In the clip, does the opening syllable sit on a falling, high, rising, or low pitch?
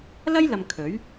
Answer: high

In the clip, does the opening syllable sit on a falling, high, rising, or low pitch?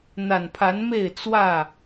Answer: low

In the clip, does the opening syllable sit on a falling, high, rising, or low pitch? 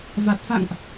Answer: low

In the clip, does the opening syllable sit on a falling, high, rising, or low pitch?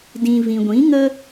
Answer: low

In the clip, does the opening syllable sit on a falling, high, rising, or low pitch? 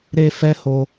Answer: high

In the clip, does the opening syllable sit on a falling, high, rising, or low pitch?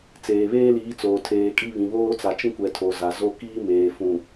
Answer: low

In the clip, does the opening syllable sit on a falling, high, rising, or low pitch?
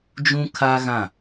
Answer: high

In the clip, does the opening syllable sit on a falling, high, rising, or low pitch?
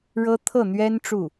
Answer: high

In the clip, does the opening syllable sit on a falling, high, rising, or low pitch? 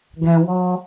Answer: low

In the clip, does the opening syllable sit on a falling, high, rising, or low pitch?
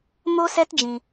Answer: high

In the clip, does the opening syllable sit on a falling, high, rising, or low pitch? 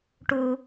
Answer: high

